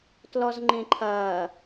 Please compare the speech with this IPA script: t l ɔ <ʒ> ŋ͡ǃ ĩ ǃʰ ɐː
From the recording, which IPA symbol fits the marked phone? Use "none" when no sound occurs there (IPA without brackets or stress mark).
z